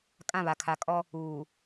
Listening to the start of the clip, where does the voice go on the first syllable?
falling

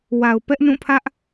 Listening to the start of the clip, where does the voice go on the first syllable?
low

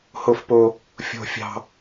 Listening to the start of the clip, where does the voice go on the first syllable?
low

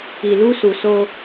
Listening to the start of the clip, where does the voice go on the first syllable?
low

